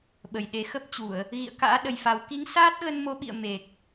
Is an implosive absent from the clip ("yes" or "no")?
no